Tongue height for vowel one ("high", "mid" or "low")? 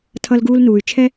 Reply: mid